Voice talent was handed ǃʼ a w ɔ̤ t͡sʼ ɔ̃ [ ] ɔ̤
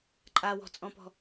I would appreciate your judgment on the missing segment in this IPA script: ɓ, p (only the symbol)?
p